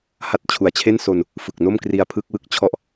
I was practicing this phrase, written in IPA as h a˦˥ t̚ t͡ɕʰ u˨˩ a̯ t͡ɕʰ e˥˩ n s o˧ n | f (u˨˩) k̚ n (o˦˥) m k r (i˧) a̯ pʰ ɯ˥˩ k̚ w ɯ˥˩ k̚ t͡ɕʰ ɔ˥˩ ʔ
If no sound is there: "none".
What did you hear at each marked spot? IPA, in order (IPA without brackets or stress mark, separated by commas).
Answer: ɯ˨˩, o˥˩, i˧